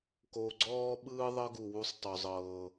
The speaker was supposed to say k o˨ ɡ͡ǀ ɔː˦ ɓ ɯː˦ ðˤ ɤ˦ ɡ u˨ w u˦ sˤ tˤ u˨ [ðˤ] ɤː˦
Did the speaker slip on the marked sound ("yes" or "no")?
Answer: yes